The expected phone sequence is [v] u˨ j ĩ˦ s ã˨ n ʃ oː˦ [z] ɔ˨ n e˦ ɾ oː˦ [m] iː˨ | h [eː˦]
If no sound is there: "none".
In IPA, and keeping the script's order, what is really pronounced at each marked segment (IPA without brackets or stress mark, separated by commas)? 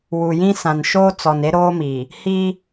w, t͡s, m, iː˦